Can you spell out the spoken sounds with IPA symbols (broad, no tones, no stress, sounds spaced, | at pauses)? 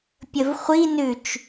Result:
pʲ ə v χʷ i n ʉ t͡ʃ